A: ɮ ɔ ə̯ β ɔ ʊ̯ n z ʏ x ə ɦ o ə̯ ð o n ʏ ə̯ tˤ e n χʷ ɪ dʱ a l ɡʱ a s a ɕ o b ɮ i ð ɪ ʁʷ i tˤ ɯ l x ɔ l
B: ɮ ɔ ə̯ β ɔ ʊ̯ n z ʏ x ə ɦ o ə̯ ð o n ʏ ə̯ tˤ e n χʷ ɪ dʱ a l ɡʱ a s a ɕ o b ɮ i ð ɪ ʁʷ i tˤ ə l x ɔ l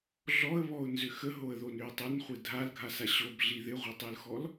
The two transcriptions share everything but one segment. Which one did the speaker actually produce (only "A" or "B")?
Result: A